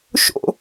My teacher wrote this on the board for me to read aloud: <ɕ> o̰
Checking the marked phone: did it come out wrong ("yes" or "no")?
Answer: yes